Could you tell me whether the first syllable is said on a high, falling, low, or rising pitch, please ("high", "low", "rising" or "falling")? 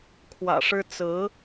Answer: low